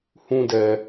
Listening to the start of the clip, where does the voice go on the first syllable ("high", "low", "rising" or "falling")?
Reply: high